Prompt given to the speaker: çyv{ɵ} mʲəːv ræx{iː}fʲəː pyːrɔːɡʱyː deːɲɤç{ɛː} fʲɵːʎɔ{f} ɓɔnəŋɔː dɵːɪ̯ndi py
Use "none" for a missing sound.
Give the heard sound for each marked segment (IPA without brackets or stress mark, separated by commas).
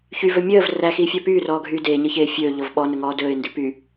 ɵ, iː, eː, v